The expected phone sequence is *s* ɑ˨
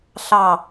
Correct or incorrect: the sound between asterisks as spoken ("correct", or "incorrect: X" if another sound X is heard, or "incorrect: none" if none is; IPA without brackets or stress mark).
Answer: incorrect: ɬ